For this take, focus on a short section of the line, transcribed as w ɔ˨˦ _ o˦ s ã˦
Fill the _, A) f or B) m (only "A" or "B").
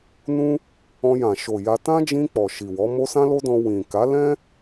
B